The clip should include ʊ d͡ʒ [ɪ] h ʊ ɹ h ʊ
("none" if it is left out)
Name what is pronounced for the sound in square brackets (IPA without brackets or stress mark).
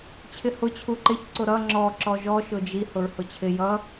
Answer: i